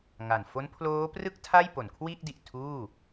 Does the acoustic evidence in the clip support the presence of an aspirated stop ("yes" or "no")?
yes